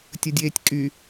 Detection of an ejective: present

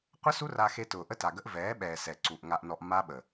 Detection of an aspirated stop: absent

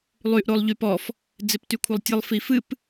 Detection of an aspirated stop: present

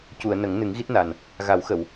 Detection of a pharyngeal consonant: absent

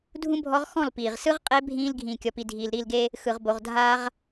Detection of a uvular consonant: present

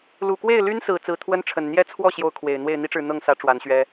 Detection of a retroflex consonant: present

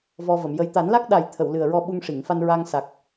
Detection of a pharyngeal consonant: absent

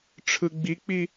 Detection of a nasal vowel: absent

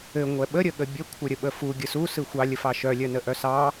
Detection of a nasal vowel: absent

